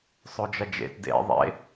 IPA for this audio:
sˤ o d͡ʒ ɐ d͡ʒ ḛ t d ḛ ðˤ ḛ

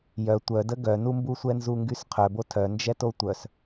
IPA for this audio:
j œ tʷ œ d ə ɡ œ n u m b u sʷ ɛ n z u ŋ ɡ y s qʰ œ b o tʰ œ n d͡ʒ ɛ t o tʷ œ s

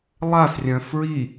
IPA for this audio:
lˠ a s rʲ œ̃ f ɹ i

